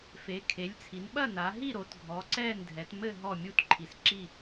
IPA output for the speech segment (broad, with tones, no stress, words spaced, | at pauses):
fe˩˧kʰe˩˧lʲt͡sʰi˩˧nɓɐ˦˨ na˩˧ɦi˦˨ɾo˩˧tɡʱɔ˩˧ ǀɛ˦˨n dʱɛ˩˧tmɘ˦˨ ɦɔ˦˨mʲu˦˨t ǃʰi˩˧sǁi˦˨